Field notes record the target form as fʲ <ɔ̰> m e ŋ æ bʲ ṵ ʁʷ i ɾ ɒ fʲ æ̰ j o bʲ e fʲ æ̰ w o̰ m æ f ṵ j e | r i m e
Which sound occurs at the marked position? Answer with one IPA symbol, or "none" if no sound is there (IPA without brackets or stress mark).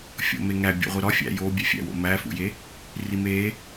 o̰